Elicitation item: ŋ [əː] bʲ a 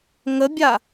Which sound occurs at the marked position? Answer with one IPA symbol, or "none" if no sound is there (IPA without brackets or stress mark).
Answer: ə